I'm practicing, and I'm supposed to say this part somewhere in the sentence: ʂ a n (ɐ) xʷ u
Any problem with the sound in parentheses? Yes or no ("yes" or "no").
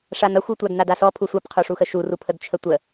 no